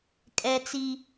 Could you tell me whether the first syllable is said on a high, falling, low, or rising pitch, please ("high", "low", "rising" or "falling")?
high